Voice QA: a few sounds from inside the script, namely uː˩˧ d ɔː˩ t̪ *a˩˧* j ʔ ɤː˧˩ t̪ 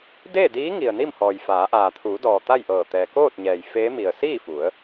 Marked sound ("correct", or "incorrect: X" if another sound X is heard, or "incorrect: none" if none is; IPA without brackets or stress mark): incorrect: a˥˨